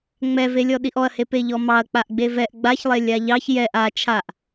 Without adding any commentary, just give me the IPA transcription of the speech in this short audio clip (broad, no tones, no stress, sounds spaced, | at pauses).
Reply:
ŋ͡m ɛ v e lʲ ɔ ɗ i ʔ ɔ ɐ̯ h e p e ʎ ɔ m ɑ ɐ̯ k͡p a ʔ ɡ͡b e v ɛ ʔ ɡ͡b a ç lˠ e lʲ a ʎ ɑ ç j ɛ ʔ a t͡ʃʰ a ʔ